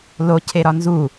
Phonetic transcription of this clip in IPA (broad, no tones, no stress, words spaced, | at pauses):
lo cʰeɾɒnzu